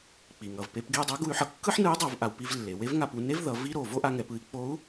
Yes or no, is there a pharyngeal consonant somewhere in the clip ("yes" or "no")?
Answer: yes